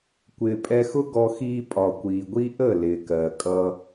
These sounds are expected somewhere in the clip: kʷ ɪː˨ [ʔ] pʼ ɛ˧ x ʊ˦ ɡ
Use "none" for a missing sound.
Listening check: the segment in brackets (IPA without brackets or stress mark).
none